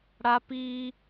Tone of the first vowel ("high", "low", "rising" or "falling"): high